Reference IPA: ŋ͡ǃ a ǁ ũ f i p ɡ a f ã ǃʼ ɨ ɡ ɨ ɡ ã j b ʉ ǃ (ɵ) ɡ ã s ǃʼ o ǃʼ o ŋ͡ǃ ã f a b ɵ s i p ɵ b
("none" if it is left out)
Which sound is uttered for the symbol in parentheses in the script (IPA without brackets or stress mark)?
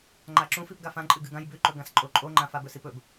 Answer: ɵ